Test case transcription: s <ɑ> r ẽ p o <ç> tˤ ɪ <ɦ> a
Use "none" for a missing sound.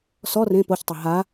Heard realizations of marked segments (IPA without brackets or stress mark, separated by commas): ɔ, ç, ɦ